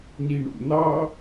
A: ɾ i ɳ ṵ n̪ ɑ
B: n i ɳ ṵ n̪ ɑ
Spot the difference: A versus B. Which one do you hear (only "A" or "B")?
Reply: B